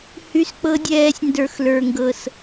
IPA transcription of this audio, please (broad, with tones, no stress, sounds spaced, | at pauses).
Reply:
h y˦ s k͡p ɤ˦ dʲ ɛː˦ sʲ n d ə˞˧ x l ə˞˧ ŋ ɡ ɤ˧ s